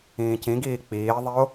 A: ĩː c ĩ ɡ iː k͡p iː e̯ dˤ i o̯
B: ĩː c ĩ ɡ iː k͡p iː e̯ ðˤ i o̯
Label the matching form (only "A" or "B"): B